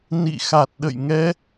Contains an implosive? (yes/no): yes